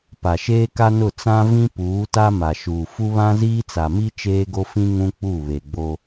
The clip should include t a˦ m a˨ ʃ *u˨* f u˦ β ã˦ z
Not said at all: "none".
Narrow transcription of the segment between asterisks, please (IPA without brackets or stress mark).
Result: uː˨